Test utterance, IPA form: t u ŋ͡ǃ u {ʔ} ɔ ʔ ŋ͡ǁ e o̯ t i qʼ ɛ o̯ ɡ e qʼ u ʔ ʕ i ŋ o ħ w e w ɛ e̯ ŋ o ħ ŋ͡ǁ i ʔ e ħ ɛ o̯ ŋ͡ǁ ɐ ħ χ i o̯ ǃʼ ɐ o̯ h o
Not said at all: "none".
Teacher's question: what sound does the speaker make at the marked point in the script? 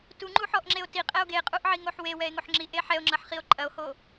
ħ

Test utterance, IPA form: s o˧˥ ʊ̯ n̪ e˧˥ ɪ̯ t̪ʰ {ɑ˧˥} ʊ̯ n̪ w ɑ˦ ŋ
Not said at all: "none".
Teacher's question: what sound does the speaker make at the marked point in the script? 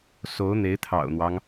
ɑ̰˨˩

